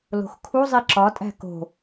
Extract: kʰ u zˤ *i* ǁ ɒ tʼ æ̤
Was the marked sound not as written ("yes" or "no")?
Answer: no